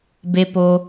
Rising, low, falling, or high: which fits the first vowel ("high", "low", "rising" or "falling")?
low